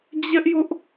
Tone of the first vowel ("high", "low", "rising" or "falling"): high